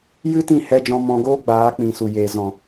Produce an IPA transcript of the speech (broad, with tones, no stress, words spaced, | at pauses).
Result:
jɨ˦tĩ˦˨ hɛ˧d͡ʒɔ̃˧ mɔ̃˧ɡoː˦ɡ͡baː˨˦k͡pĩ˨ su˨jeː˨ zɔ̃˨